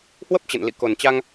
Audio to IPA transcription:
h w ə˦˥ p̚ t͡ɕ ə̰˧˨ n l ḭ˧˨ k o˨˩ n t͡ɕ a˧ ŋ

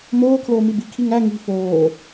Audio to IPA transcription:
m oː kʰ l oː m i b i kʰ i ŋ æ ŋ i̤ f oː

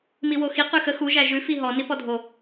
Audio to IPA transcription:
m i w o x i q ʉ x ə x u ʒ æ ʒ ʉ f i ɦ ɔ n i p ɔ dʱ o

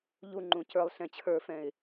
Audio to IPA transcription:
ʎ u ŋ͡ǃ ũ c ə˞ lˠ ɬ ɛ̃ t͡ɕʰ ə˞ f ɛ̃ ɪ̯

